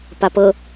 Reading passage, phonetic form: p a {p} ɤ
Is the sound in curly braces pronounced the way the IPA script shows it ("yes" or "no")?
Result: yes